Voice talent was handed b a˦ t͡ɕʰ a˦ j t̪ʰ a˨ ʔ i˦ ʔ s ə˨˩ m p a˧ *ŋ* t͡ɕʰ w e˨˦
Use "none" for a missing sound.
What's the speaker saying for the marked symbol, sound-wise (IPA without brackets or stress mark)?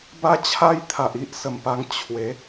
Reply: ŋ